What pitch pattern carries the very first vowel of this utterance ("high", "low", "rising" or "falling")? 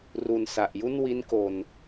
low